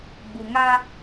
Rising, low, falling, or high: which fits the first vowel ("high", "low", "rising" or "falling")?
low